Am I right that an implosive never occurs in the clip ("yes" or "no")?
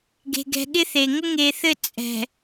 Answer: no